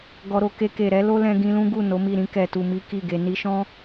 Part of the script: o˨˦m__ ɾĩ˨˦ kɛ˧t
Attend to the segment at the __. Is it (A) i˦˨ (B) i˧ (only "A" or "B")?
A